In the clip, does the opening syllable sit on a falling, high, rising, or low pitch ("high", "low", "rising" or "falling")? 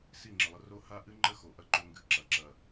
falling